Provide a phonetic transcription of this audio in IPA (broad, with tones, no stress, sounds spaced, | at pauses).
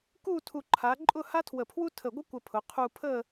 k u˥˧ tʰ u˧ ǃʰ a˩˧ ǃʼ ʊ˥˧ h a˥ tʰ w ə˧˩ pʰ w u˥ tʰ ə˧˩ ɡʷ ə˥ kʷ ə˧ pʰ ʊ˩˧ qʰ u˧ pʰ ə˥˧